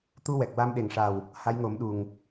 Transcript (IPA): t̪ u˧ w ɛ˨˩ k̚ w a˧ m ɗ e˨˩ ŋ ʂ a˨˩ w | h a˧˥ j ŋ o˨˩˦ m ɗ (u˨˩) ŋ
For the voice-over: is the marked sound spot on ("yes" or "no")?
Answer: yes